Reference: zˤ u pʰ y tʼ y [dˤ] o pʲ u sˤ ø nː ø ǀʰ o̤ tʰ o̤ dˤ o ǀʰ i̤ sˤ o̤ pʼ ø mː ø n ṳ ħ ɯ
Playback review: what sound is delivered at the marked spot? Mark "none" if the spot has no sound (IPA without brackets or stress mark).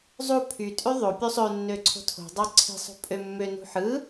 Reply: ðˤ